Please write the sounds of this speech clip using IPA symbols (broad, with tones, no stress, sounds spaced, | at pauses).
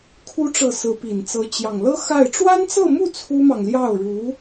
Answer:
kʰ u˧˥ ʈ͡ʂ ɤ˨˩ s ɹ̩˧˥ p i˨˩ n t͡s ɤ˧˥ t͡ɕ j ɑ˨˩ ŋ l ɤ˥ x a˥˩ ɪ̯ ʈ͡ʂ w a˥ n t͡s ɤ˥˧ m u˥˩ t͡sʰ u˥ m ɑ˨ ŋ l j ɑ˥˩ ʊ̯ ɻ u˧˥